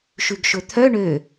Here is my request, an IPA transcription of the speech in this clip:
ʃ ʉ ɡ ʃ ɵ t̪ʰ œ ɳ ø

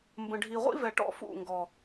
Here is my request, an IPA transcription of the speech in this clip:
m b ə̃˨ ɖʱ i˨ ʁʷ ḭ˦ v ɛ˨ ʈ ɔ̰˦ f ṵ˦˨ ŋ ɡ ɔ˨

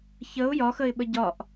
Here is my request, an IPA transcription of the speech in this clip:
ç ə ʊ̯ j ɒ x ə ɪ̯ ɓ ə ɟ ɒ ʔ

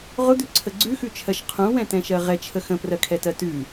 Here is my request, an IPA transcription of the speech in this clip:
ʁ ʊ d̪ ʉ ǀʰ ə ɡ͡ǀ ʉ x ʉ t͡ʃʰ ɜ ʃ qʰ ũ w ɛ̃ t ɛ̃ ʃ ɜ ʁ ɛ t͡ʃʰ ə x ə̃ p r ɜ kʰ ɛ t ɜ t ʉ

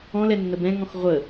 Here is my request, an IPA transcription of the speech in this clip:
ɔ̃ l ɛ nː ə b ɛ̃ ŋ ɔ̃ x ʁʷ ə

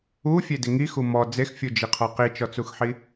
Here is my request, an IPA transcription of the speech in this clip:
u fʲ e d ɪ ŋ i x u m ɔ d͡z e x fʲ u d͡ʒ i qʰ ɔ q i t͡ʃ ɔ t͡s u x ħ i

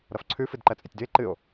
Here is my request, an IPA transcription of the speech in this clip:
ɾ ʌ f ǀʰ ʉ f ɨ d ǃ ɜ t͡sʼ e tʲ d ʉ e̯ ǃ ɨ o̯

